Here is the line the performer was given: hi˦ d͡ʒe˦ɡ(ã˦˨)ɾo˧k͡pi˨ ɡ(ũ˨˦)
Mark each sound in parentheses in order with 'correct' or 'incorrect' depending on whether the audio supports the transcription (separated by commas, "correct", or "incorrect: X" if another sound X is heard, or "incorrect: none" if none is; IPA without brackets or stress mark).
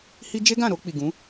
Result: correct, correct